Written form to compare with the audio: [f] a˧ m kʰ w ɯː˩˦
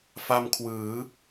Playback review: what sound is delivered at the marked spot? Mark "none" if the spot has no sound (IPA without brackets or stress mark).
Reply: f